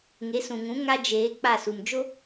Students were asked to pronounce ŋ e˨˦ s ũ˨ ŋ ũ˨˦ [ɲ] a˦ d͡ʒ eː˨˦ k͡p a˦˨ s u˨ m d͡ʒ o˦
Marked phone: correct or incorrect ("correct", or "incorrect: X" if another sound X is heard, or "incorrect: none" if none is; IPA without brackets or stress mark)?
incorrect: ŋ